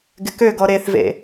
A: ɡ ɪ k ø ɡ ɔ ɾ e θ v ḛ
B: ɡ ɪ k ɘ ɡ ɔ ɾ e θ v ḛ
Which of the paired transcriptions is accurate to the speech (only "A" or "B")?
A